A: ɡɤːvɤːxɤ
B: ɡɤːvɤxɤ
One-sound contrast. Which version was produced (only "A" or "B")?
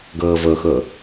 B